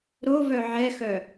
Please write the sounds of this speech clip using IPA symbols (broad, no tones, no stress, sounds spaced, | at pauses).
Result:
ɾ o v œ ʕ ɛ x œ